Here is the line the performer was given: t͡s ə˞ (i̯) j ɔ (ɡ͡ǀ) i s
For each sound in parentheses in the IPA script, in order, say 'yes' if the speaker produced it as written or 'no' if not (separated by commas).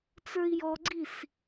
yes, yes